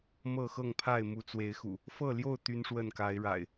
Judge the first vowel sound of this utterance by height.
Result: mid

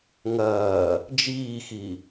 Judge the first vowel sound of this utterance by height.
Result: low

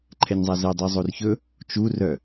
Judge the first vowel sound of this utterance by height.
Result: mid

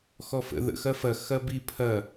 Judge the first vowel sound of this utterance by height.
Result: mid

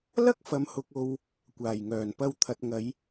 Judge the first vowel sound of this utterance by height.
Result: low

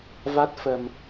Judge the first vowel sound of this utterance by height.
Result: low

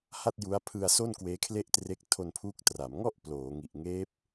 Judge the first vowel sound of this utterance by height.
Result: low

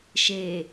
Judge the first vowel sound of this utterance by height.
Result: mid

